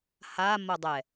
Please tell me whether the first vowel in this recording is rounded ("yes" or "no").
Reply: no